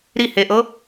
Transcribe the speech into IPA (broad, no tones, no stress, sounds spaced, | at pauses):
ɾ i h e ʔ ɤ